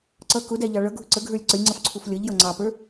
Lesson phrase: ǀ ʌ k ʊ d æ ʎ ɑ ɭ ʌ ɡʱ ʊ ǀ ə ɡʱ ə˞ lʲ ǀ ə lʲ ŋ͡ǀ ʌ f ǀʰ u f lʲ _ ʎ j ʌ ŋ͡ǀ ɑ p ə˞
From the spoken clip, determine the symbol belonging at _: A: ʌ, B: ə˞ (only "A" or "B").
A